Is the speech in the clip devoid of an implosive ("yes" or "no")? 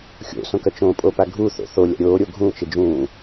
yes